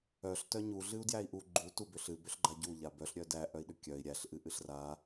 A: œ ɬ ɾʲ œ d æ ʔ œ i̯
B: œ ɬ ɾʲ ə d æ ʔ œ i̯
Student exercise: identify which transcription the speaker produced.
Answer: A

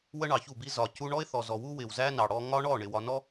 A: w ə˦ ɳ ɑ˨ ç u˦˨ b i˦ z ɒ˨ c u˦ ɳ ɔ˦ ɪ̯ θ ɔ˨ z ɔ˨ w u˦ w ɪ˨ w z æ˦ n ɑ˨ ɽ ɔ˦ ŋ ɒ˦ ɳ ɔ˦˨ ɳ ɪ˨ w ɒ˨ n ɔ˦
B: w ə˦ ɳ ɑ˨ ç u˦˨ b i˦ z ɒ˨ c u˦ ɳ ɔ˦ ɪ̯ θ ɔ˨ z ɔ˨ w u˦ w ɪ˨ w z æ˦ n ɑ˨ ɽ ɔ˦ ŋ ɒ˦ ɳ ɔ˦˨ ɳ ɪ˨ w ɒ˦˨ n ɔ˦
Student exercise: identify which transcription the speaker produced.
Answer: A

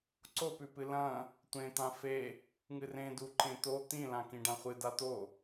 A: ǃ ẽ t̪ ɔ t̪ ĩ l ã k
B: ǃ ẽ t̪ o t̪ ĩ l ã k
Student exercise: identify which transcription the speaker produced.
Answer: B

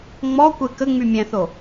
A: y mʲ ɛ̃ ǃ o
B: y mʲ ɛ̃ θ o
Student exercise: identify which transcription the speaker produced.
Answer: B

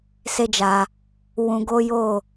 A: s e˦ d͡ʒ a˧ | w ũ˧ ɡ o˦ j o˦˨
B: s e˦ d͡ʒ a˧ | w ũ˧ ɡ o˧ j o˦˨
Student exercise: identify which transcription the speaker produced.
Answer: A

